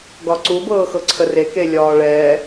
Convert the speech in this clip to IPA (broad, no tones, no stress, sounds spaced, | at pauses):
ɡ ɒ ǀ u b ɤː x ɤ ǀʰ ə r e k e lʲ ɒː ɭ ɛː